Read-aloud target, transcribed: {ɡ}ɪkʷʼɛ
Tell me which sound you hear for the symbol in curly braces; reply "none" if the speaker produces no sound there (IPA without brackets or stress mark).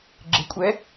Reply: ɡ͡ǁ